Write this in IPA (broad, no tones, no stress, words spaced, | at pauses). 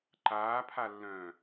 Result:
ǃaːpʰalːœ̃ː